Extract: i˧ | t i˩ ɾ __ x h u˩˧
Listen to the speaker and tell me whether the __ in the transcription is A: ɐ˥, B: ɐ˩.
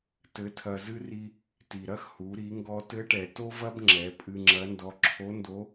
A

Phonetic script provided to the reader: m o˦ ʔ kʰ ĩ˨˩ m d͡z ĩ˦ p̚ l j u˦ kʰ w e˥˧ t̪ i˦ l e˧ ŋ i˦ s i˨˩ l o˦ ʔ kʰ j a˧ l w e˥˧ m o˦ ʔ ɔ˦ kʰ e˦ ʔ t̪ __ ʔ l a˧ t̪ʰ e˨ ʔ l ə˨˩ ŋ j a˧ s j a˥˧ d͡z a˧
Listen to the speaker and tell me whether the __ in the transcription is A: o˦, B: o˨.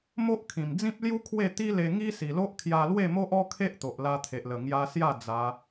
B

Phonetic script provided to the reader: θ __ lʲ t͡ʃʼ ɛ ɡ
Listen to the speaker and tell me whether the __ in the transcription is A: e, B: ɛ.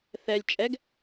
B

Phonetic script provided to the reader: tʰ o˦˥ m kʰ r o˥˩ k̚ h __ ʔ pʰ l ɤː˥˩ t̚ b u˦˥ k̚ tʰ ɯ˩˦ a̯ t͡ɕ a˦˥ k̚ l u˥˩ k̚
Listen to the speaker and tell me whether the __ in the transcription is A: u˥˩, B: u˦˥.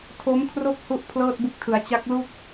B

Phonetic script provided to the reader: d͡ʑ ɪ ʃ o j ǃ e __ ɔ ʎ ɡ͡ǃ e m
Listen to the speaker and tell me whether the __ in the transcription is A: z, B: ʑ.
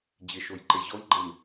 B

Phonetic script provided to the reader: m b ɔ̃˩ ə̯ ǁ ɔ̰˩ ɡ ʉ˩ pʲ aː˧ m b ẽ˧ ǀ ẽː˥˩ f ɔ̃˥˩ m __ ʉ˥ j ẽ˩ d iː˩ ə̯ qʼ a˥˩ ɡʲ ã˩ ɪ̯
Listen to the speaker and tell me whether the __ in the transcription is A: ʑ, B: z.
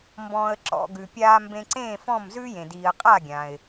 B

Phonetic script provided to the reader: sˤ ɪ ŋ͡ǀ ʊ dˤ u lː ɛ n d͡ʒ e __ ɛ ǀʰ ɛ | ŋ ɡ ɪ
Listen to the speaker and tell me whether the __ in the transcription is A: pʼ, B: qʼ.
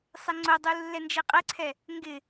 B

